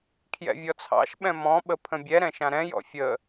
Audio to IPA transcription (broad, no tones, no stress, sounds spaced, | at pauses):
kʰ j ɛ̰ vʲ ɔ t͡sʰ ɑ̰ ʃ ɓ ɛ̃ m ɔ̃ ɓ ə pʰ ə̃ bʲ ɛ ɾ ɛ̃ ʃ ã ɾ ɛ̃ j ɔ̰ fʲ ə